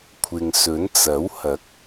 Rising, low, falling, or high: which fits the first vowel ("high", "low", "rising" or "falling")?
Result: low